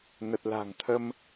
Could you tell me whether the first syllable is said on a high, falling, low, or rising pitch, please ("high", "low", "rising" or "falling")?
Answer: low